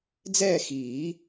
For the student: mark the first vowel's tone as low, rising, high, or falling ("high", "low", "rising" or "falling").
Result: falling